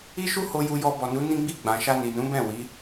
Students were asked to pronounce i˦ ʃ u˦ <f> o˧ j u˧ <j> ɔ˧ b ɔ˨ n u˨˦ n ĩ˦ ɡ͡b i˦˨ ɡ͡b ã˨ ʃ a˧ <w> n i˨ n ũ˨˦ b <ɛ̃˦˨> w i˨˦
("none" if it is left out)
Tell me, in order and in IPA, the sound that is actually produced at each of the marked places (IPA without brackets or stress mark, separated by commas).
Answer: h, j, none, ɛ̃˦˨